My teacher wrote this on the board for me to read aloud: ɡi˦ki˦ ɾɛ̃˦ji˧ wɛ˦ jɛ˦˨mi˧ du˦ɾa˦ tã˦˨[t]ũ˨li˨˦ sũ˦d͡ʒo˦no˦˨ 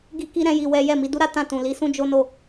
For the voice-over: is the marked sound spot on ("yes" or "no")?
yes